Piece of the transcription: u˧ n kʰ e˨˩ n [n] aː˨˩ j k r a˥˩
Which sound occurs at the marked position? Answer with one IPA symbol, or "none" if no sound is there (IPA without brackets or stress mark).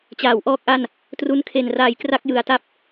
r